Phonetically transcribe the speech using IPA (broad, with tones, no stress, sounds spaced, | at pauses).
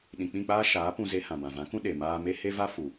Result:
ɗ ĩ˨ k͡p ĩ˦˨ k͡p aː˦ ʃ aː˨˦ p ũ˧ z e˧ h ã˨ b ã˨ v ã˨˦ k ũ˦ ɗ e˨ m aː˧ m e˦ h e˦ v a˦ f u˨